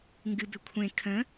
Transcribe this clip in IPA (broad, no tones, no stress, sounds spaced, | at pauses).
ŋ ɡ ɨ b ʏ kʷʰ ẽ kʰ ə̃